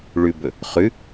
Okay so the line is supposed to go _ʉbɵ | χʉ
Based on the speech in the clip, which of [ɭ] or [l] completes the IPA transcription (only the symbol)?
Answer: ɭ